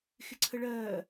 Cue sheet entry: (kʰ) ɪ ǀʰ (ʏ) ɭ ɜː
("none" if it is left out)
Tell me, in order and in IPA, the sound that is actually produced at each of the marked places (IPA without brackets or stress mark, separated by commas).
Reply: x, ə